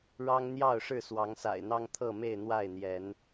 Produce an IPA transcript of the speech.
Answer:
ɻ ɑ˦ ŋ n̪ j ɑ˥˨ ʊ̯ ʂ ɻ̩˥˨ s w ɑ˨˦ ŋ s a̰˨˩ ɪ̯ n̪ ɑ˦ ŋ t̪ʰ ɤ˥˨ m e˥˨ ɪ̯ n̪ w a˥˨ ɪ̯ n̪ j ɛ˨˦ n

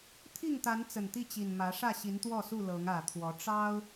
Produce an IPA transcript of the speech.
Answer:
t̪ʰ i˥˨ ŋ t̪ a˨˦ n t͡s ə˨˩ n t̪ i˥˨ t͡ɕ i˨˩ n m ä˨˦ ʂ ä˥˨ ɕ i˨˦ n t̪ w ɔ˥˨ s u˥˨ l ɤ˨˦ ŋ ä˨˩ t̪ʰ w ɔ˨˦ ʈ͡ʂ ɑ˦ ʊ̯

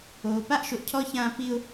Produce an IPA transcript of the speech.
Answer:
oː˨ p a˦ ʔ ʃ o˨ ʔ cʰ ɔ˦ ç ãː˦ p i˦ ʊ̯

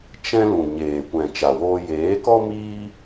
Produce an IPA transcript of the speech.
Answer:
t͡ʃ ɛ̃˦ l ũ˨ ɲ eː˨ kʷ ɛ̃˨ t͡ʃ a˨ w oː˧ j eː˨˦ k ɔ˦ m iː˦

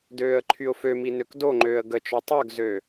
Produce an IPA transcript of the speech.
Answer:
d øː ə̯ ǃʰ y ʊ̯ f ø m i n ø k d o ŋ͡ǃ øː ə̯ ɡ ə t͡ʃ ɔ tˤ œ ɡ z ø

